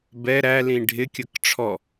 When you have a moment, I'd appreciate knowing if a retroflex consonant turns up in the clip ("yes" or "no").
yes